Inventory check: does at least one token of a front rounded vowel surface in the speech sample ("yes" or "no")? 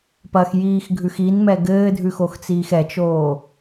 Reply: no